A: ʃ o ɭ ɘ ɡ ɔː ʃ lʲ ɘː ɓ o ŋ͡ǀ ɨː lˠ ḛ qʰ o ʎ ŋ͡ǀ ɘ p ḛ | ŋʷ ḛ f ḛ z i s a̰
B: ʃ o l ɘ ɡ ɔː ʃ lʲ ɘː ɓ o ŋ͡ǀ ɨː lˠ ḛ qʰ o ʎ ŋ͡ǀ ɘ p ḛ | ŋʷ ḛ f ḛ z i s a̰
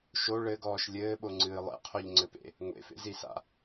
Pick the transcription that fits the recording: A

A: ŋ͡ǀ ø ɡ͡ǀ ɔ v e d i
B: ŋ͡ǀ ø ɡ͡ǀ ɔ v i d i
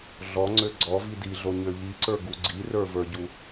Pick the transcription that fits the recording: B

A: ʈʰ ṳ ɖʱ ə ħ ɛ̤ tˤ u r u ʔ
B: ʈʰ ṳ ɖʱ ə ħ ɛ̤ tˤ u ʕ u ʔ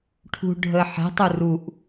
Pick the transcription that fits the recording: A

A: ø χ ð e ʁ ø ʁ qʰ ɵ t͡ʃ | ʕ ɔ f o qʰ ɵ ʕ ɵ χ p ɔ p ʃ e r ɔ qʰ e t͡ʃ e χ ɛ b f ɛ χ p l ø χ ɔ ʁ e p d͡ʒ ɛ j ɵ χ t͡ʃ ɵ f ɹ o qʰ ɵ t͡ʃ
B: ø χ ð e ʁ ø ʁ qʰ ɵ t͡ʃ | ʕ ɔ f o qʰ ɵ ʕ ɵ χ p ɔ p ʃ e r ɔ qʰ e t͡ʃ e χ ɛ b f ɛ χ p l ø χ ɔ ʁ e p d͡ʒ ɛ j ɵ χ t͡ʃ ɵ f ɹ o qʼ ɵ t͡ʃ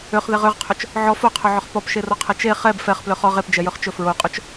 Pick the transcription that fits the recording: B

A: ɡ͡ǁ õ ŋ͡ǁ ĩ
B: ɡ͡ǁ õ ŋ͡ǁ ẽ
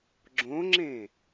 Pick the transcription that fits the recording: B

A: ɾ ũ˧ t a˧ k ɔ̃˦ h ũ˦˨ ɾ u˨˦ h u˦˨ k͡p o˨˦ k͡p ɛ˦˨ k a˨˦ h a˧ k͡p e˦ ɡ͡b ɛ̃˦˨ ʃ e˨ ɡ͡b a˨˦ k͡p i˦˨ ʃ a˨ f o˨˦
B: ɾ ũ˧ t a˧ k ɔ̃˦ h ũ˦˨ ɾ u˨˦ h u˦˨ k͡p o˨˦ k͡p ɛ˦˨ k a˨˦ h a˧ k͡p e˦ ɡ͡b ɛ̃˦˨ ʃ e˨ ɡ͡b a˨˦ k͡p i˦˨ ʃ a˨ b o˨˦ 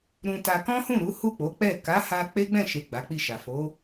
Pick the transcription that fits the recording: A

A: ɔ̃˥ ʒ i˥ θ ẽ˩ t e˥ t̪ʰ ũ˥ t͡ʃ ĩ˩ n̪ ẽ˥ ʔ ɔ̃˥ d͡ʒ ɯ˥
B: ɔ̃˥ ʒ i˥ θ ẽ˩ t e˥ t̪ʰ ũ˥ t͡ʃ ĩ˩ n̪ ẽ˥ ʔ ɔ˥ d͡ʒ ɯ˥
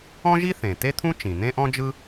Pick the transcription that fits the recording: A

